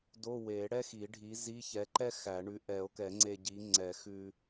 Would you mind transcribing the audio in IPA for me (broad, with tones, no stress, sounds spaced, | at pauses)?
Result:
d o˧˥˧ w e˨˩˦ ɽ ɛ˥ x i˨˩˦ ɖʱ i˨˥ z i˧˥˧ ç ɛ˨˥ ǃ ɛ˥ x æ˨˩˦ ɳ ʉ˨˥ ʔ ɛ˨˩˦ o̯ k ɛ˨˩˦ ŋ͡ǀ e˧ ɟ i˨˥ ŋ͡ǀ ɛ˨˩˦ x ʉ˧